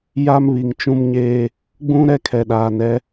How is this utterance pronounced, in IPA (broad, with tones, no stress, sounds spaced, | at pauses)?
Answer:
j a˦ m β i˨ ŋ t͡ʃ ũ˦ m ɲ eː˦ | ɡ͡b ũ˦ ɾ ɛ˦ kʰ ɛ˨ ɗ aː˨ n ɛ˦